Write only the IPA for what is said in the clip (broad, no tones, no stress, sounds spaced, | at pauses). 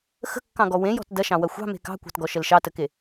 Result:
x ə̤ kː ɑ̃ ɡ ɔ w ẽ j ɔ̤ t d ɐ ʃ ɑ̃ w ɐ xʷ ɑ̤ m e̤ k ɑ̤ kʷ ɑ̤ t ɡ ɔ ʃ ə l ʃ ɑ t ə k e